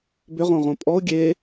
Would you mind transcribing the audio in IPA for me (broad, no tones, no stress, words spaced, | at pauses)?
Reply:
bʏʁõʁõ pʼɔʊ̯ ɡʲe